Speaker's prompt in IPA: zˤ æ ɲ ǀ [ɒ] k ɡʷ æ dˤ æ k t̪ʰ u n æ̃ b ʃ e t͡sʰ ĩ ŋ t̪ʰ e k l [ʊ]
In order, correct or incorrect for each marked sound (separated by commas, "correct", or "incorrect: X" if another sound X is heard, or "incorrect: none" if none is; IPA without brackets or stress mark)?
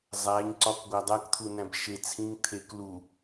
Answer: correct, incorrect: u